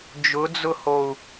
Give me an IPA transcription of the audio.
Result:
d͡ʒ ʊ d͡z ʊ h o u̯

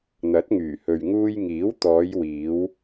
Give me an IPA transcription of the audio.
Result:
n̪ ɐ˨˥ t̚ ŋ yː˨˩ h ɵ˨ ɥ ŋ uː˧ j ŋ iː˨˥ w t̪ ɔː˨˧ j w iː˨˧ w

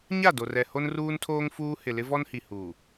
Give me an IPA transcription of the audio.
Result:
ɲ a˦˨ d o˨ r ɛ˨ h o˦ n r uː˦ n tʰ oː˦ ŋ f uː˦ h ɪ˨ l ɪ˦ v ɔ˦ n h i˨ h uː˨

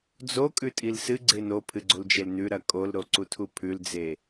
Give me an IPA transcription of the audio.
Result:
d͡z o kʼ ʉ tʼ i l s ɨ ɡ͡ǀ e n o pʰ ɨ ɡ͡ǀ o l d͡ʒ e l n ʉ ɾ ɐ kʼ o l ɾ o ǀ u tʰ u pʰ ʉ l d͡z e

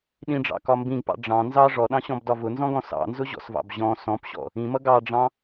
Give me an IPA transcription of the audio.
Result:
ɗ ĩ ɖ͡ʐ ɑ̰ k ɒ m b ĩ ɡ p ɑ̰ ɖ͡ʐ ɑ̃ n z ɑ ʐ ɔ ɗ ɑ̃ ɕ ɔ̃ b d ɒ v ʊ n z ɔ̃ ɡ ɔ̃ s ɑ̰ n z ʊ ʑ ɔ̰ s v ɑ̰ b ʑ ɔ̃ s ɔ̃ p ɕ ɔ̰ | ĩ m ʌ ɡ ɑ ɖ͡ʐ ɑ̃

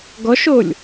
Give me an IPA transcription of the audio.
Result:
ɡ ɔ ʃ o lʲ

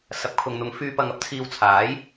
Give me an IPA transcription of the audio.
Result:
s ɐ˨˥ p̚ kʰ ʊ˨ ŋ n̪ ʊ˨˧ ŋ f yː˨ p ɐ˨ ŋ ɐ˨ p̚ t͡sʰ iː˨ w t͡sʰ aː˨˥ j

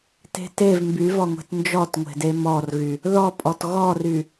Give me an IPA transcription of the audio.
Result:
t e̤ t e v m b y v ɔ ŋʷ e̤ t n d͡ʒ ɔ t ŋʷ e̤ d e m ɔ r ɣ y | ð ɔ pʼ ɔ t ɣ ɔ r y

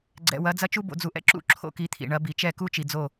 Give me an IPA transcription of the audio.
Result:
ɡ͡ǀ ɛ̰˨ w ɐ˨˦ d͡z ɐ˦ t͡ʃ u˦ b o̰˨ d͡z u˨ ʔ ɛ̰˦ ǁ ṵ˦˨ ǁʰ o̰˦ k i˨˦ t̪ʰ ḭ˨ ɳ ɐ˨˦ b i˨ t͡ʃ ɛ˦˨ k u˦ t͡ʃ i˨ d͡z o˦˨

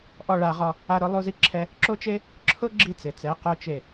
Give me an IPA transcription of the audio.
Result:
ʔ ɔ˦˨ ɭ a˧ ʁ ɔ˧ | a˦ ɾ ʊ˦ lˠ u˦ z i˦ ǁʰ ɛ˦ | ǁ o˦ t͡ʃ e˦ | ǁʰ ʊ˦ ɡ͡ǁ i˧ t͡s ɪ˨ t͡s ɛ˨˦ q o˦ t͡ʃ e˦˨

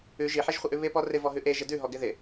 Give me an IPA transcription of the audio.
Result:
ʉ ʒ i ħ e ʒ χʷ ɪ ʔ ʉ β ɪ p ɔ r ɪ v ɔ ɦ ʉ ʔ e ʒ ɪ d ʉ ɦ ɔ ɡ ɪ ð ɪ

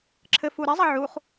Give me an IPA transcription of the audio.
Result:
ǁʰ ɘ f u ɾ ɛ zˤ ɐ ʕ u χ

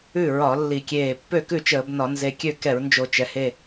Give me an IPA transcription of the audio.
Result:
ʉ˥˩ ɹ ɒ˧˩˧ lː i˧˩˧ kʲ eː˧˩ pː ø˥˩ k ʉ˥˩ t͡ʃ əː˧˩˧ b n ɒ˧˩˧ n z e˧˩ kʲ ø˥˩ k ɛ˧˩˧ ɹ n d͡ʒ o˧˩˧ t͡ʃ ɛ˩ h e˧˩

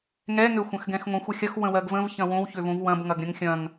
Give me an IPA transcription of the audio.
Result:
ŋ ɛ ŋ ø xʷ ɐ̃ x ɡ ɛ̃ x ŋʷ ə̃ xʷ ɐ xʲ ɐ x w ə̃ w ɜ ɡ v ə̃ v ç ɐ̃ w õ w ç ø v õ v w ɐ̃ b ŋ ɐ ɡ ɾʲ ɐ̃ ŋ xʲ ɐ̃ ŋ

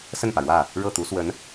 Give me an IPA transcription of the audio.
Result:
s ə˥˩ n p ä˩ ɻ w ä˥˩ | ɻ ɤ˥˩ t̪ u˧˥ s w ə˧˥ n

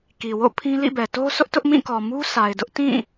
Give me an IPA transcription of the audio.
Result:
k i˨ w o̰˦˨ pʰ ĩ˦ l ḭ˦˨ b ɛ˨ t o˦ s ʊ˦ ʔ t ʊ˦ ʔ m ĩ˦˨ k ɔ˨ m u˦ sʰ a˨ ɪ̯ d ʊ˦ ʔ t ĩ˦˨

